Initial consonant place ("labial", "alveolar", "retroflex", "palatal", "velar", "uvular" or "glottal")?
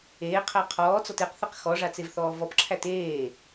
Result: uvular